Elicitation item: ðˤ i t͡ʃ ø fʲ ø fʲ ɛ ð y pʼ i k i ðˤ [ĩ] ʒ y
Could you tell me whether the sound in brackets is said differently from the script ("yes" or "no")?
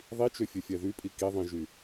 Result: no